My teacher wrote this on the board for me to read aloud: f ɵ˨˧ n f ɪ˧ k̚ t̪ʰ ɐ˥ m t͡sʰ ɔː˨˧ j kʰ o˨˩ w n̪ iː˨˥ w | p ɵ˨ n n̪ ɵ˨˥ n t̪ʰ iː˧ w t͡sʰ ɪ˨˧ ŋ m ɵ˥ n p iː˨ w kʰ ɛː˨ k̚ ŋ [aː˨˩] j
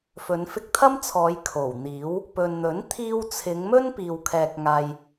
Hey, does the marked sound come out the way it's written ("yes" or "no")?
no